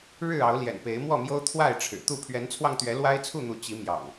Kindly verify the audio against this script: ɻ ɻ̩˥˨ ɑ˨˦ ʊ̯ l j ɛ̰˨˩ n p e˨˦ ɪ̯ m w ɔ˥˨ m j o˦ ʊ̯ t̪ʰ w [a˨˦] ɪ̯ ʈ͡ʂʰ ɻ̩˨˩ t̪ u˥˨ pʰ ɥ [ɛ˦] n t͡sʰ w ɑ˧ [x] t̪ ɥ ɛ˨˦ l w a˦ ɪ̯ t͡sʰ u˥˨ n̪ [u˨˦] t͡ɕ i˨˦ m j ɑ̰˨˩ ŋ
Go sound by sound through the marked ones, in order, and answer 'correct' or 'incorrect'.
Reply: incorrect, incorrect, incorrect, correct

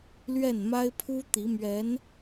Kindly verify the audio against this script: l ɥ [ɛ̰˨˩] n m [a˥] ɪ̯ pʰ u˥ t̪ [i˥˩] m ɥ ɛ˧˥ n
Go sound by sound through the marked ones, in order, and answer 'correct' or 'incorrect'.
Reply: incorrect, correct, incorrect

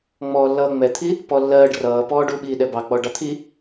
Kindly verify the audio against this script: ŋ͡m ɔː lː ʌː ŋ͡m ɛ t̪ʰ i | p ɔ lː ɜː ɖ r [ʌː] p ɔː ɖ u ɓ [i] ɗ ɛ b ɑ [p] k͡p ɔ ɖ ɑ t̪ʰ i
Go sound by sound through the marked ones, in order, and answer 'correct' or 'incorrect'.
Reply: correct, incorrect, incorrect

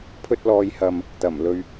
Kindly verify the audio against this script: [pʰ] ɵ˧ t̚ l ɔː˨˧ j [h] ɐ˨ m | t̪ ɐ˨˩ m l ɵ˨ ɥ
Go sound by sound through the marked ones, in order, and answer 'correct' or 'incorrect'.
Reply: correct, correct

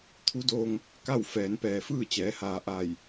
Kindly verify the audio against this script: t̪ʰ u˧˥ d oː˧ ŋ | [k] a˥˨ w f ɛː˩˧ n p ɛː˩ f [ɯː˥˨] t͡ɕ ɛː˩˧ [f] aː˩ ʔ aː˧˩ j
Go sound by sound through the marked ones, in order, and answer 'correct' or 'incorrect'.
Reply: correct, correct, incorrect

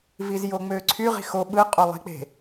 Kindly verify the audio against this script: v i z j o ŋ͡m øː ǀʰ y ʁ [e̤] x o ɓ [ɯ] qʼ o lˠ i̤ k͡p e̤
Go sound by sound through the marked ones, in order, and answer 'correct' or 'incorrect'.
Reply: incorrect, correct

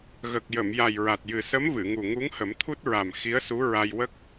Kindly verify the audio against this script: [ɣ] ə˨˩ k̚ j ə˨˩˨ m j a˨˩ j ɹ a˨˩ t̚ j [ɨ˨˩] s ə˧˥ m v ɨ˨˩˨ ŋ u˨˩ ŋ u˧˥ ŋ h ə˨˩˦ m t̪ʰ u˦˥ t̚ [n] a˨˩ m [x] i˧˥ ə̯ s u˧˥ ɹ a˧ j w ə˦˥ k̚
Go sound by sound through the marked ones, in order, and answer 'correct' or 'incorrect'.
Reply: correct, correct, incorrect, correct

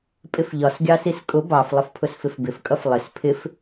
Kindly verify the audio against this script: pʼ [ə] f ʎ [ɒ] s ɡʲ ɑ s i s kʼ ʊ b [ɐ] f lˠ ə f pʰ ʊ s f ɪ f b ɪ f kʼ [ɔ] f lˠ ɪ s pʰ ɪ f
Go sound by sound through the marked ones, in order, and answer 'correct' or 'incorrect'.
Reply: incorrect, correct, incorrect, incorrect

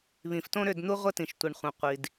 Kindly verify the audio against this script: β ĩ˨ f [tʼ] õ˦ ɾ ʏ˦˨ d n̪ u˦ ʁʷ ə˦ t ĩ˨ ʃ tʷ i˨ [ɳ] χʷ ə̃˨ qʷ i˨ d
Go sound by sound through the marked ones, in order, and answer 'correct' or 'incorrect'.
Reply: incorrect, correct

